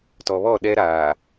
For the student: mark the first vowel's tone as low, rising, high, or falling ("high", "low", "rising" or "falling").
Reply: low